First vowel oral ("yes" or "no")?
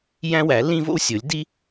no